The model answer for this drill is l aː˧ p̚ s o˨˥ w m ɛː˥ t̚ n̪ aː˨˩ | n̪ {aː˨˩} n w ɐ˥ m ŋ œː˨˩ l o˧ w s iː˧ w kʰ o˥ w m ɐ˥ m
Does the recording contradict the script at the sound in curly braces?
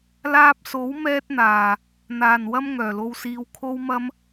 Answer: no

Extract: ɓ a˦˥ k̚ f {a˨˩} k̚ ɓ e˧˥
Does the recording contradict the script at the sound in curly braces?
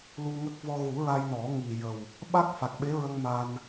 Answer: no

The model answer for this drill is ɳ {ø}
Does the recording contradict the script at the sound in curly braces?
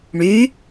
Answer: yes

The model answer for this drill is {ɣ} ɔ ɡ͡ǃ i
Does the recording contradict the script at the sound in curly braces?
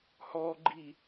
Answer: yes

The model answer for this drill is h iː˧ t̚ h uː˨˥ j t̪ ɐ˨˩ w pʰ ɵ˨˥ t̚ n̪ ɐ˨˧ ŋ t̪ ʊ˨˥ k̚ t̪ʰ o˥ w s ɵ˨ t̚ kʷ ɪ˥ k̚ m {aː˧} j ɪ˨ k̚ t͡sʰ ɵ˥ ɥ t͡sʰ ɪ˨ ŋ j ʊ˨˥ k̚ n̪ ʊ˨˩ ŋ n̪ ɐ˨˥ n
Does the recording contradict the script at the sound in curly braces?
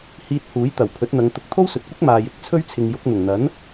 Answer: yes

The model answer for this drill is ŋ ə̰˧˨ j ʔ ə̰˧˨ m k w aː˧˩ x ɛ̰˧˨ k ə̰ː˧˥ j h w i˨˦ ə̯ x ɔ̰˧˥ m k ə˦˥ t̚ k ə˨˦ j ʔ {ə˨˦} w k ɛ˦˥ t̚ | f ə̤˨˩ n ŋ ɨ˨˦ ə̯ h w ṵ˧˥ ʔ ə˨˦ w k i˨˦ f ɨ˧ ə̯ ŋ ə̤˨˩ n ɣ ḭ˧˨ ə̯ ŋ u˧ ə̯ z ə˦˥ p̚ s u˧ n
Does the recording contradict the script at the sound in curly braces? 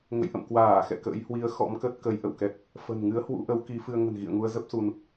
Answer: yes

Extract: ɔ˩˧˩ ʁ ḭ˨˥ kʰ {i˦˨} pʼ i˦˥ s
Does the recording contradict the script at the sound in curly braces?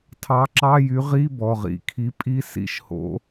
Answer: yes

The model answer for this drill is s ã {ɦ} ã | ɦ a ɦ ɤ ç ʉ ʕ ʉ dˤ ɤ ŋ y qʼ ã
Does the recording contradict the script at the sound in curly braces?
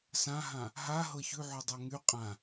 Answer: no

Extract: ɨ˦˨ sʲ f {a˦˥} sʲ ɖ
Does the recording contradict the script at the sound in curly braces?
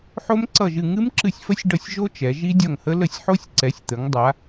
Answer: yes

